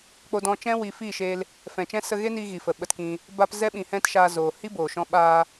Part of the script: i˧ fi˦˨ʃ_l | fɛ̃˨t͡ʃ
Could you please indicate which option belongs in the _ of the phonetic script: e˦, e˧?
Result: e˧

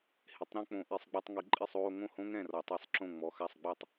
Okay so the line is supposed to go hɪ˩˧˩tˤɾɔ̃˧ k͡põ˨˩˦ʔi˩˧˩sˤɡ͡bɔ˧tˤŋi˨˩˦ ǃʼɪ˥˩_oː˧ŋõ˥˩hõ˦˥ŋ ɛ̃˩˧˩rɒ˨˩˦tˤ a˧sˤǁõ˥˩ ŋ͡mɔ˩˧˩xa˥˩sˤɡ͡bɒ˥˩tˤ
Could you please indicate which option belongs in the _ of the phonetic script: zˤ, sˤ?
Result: sˤ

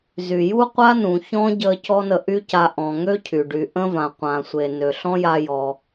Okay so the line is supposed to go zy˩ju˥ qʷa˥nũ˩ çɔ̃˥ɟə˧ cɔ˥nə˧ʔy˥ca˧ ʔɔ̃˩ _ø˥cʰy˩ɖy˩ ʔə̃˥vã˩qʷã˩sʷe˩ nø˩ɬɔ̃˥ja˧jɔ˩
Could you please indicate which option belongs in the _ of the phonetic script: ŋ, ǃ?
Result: ŋ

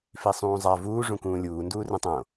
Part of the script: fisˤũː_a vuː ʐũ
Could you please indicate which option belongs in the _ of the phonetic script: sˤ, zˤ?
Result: zˤ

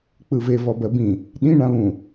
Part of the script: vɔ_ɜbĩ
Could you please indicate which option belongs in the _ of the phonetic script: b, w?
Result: b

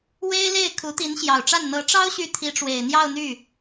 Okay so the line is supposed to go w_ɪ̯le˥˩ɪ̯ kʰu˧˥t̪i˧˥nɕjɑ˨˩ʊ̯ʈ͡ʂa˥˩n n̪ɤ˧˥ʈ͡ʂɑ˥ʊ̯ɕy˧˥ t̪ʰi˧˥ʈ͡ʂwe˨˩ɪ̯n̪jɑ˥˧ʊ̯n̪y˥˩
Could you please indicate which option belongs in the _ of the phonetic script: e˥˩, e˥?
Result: e˥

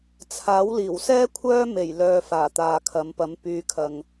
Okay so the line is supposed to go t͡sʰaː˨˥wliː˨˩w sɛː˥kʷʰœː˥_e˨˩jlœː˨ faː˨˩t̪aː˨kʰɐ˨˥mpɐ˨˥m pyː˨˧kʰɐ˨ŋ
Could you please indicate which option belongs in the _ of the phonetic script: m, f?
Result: m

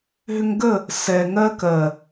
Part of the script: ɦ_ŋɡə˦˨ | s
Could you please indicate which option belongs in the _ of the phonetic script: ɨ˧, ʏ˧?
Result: ʏ˧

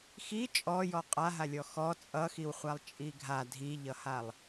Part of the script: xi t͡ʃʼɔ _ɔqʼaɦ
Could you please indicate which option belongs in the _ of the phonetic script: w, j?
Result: j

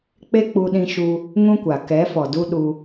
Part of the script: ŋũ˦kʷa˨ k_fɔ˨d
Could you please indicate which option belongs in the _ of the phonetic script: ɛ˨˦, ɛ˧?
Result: ɛ˨˦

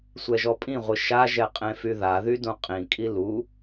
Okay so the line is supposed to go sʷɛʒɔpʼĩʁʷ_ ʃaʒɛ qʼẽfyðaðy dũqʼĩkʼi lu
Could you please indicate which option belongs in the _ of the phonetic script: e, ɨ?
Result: ɨ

